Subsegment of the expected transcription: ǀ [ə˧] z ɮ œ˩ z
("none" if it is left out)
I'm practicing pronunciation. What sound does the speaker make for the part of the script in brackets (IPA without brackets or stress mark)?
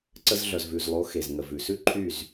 ə˧